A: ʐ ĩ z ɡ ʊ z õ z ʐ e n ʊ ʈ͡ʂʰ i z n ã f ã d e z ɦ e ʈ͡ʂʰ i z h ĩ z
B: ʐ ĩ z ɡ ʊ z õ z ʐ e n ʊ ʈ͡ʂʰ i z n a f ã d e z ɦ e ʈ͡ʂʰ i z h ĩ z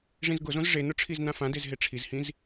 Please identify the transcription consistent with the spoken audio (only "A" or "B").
A